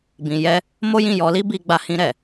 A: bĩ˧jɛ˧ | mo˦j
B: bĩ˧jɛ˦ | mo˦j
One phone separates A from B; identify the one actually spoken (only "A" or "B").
B